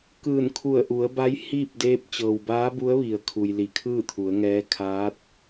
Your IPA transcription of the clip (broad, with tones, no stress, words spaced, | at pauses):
kɯː˧˩nkʰu˧˩ə̯ʔu˩˧ə̯ba˧˥j hiː˥˨p̚deː˧˥p̚ t͡ɕɤː˩wbaː˧˥ bu˧˥ə̯ʋi˩ə̯kʰu˩j li˧˩kʰɯː˥˨t̪ʰu˩˧ə̯ŋɛː˧˥ kʰaː˧˥t̚